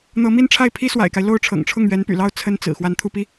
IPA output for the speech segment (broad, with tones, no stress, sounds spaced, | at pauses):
n̪ ɤ˧˥ m i˥ n ʈ͡ʂʰ a˥˩ ɪ̯ pʰ i˥ s w a̰˨˩ ɪ̯ k a˦ ɪ̯ l o˥˩ ʊ̯ ʈ͡ʂʰ ɤ̰˨˩ ŋ ʈ͡ʂʰ ʊ˥˩ ŋ ɥ ɛ˧˥ n p y̰˨˩ l ɑ˥˩ ʊ̯ t͡sʰ ə˥ n t͡s ɹ̩˨˩ x w a˧˥ n t̪ʰ u˥˩ p i˥